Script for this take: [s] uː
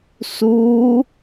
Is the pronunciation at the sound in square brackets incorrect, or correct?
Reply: correct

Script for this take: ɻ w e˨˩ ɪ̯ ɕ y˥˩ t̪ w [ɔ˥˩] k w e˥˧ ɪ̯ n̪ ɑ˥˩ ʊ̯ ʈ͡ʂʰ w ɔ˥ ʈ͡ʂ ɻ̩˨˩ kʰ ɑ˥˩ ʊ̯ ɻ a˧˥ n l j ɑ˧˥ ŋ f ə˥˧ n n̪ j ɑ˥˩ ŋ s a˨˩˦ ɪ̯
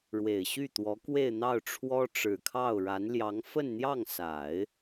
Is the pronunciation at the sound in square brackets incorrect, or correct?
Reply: incorrect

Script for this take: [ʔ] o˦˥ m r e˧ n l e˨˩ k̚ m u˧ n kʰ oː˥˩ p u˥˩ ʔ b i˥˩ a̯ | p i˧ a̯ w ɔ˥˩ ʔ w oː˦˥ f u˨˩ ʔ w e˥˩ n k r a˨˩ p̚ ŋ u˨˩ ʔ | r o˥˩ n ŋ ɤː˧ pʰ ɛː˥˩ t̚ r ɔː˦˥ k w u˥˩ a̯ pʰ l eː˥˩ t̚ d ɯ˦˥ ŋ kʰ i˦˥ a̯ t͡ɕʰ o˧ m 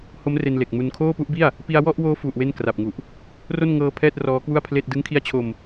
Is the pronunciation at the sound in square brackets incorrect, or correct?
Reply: incorrect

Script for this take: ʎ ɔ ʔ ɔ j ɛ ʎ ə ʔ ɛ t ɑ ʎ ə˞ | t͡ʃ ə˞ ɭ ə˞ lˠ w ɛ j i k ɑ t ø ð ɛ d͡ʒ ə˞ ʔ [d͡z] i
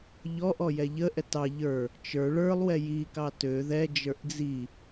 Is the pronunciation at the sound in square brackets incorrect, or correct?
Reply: correct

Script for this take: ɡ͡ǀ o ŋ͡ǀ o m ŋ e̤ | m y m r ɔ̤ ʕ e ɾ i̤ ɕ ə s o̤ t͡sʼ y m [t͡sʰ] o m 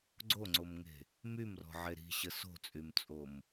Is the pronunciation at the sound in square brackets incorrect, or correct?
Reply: incorrect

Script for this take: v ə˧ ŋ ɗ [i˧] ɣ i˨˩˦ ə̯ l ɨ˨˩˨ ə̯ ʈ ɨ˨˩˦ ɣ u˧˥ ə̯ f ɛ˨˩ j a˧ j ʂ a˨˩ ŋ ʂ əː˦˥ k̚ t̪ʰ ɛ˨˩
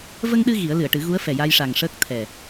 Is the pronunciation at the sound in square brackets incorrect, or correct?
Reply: incorrect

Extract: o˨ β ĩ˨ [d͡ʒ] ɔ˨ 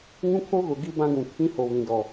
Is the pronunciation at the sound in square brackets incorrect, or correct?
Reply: incorrect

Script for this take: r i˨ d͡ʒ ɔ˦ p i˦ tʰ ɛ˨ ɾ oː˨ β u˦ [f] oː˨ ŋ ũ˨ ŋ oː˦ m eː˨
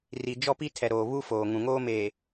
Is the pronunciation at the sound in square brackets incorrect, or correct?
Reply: correct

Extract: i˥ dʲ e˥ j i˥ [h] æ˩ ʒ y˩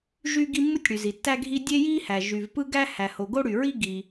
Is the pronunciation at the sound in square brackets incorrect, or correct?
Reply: correct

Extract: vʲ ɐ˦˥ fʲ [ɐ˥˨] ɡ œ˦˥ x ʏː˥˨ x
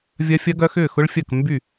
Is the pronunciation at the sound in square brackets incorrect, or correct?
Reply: incorrect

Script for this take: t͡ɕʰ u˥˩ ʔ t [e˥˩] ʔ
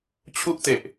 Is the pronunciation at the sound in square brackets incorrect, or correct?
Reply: incorrect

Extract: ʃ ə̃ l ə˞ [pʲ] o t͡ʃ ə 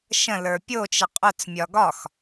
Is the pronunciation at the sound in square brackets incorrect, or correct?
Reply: correct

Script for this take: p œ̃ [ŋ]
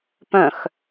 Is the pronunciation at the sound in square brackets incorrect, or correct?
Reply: incorrect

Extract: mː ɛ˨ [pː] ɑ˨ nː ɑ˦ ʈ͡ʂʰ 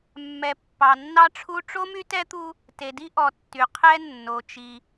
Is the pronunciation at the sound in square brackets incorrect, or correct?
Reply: correct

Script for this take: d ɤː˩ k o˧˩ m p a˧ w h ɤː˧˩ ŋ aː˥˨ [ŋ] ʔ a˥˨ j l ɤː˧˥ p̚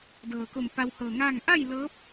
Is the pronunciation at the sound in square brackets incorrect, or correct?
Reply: correct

